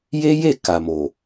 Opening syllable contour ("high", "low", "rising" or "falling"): high